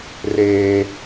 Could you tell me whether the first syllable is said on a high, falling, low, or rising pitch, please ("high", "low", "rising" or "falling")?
high